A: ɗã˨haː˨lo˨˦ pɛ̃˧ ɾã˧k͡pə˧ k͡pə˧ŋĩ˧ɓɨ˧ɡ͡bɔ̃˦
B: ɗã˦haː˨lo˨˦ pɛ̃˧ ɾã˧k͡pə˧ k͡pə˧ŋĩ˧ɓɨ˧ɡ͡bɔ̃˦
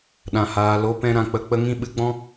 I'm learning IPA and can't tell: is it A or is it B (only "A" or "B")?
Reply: A